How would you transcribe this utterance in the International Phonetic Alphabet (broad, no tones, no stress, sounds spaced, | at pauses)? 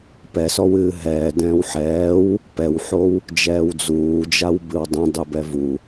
p ɛ s ɔ w ɨː ɦ ɛː d ɛ̃ː w ħ ɛː w | p ɛ w ħ o w | d͡ʒ ɛː w d͡z uː d͡ʒ a w b ɨ w dˤ ẽ dˤ u b ɛ v u